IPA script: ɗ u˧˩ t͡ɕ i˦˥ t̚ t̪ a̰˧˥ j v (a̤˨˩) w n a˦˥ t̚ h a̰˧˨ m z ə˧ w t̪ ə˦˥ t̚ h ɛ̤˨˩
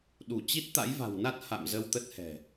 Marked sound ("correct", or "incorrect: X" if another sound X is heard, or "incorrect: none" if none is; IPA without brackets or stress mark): correct